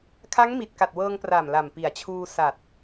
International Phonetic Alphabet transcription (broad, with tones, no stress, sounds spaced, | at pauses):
kʰ a˦˥ ŋ m i˨˩ t̚ k a˨˩ t̚ w ɤː˧ ŋ p r aː˨˩ m l a˨˩ m p i˨˩ a̯ t͡ɕʰ uː˧ s a˨˩ t̚